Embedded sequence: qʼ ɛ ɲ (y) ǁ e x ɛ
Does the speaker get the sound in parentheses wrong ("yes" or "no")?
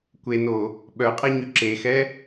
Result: no